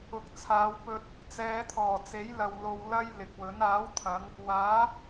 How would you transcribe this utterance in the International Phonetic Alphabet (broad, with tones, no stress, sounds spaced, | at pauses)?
ʊ˨ k̚ t͡sʰ aː˨˧ w p ɵ˧ t̚ | t͡s ɛː˨˧ t̪ʰ ɔː˨˩ t͡s e˨˥ j l ɐ˨ w l o˧ w l ɐ˥ j l ɪ˨ k̚ w ɵ˨˥ n aː˨˥ w t̪ʰ ɐ˨˧ ŋ | w aː˨˥